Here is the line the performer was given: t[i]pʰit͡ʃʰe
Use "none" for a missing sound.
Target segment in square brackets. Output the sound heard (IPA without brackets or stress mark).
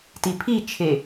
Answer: i